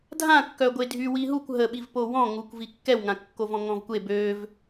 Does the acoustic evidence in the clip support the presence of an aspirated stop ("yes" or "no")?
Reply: no